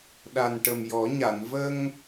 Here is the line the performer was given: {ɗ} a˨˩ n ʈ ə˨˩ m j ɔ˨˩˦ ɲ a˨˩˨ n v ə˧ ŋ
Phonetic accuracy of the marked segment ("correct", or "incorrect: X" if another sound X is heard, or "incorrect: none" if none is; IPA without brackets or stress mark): correct